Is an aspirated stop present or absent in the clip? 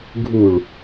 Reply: absent